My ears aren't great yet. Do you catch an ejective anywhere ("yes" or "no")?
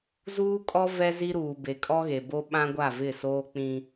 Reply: yes